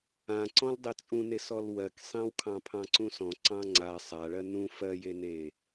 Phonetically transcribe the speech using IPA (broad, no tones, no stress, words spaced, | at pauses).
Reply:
ãǀɔ̃l dˤet͡sʼũnesɔl wɜksˤẽwkʰɑ̃ pʰɑ̃ǀũsɔ̃ ǀɑ̃ŋ͡ǀa sˤaɭɜ nũ fɜjene